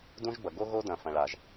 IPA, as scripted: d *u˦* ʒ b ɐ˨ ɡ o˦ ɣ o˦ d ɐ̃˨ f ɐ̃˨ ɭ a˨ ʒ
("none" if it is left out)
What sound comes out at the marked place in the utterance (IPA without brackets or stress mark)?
ũ˦